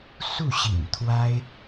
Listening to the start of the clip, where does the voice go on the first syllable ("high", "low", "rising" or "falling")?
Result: falling